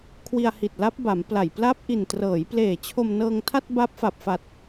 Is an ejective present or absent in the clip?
absent